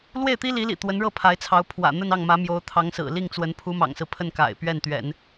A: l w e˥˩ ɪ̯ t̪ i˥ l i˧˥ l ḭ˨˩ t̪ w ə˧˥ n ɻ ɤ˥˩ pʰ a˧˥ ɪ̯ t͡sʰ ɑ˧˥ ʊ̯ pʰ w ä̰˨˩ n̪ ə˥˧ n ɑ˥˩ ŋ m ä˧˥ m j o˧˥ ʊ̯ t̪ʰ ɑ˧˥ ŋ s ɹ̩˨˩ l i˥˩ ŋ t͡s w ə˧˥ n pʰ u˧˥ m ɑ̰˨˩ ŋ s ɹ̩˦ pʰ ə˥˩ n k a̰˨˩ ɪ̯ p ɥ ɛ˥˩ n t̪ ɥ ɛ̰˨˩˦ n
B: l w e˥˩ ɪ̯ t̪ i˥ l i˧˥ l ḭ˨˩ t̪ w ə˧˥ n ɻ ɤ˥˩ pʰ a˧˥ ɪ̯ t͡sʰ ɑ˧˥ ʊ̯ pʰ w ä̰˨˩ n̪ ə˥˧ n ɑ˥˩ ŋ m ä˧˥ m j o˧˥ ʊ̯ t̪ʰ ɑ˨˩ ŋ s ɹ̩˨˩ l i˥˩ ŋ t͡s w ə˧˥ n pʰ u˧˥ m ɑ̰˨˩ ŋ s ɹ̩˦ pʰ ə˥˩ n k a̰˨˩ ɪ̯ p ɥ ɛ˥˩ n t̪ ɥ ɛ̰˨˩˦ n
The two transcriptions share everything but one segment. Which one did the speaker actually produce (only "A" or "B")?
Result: A